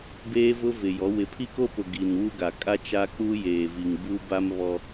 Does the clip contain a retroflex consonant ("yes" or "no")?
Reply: no